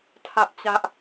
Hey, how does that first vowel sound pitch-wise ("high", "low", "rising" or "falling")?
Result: high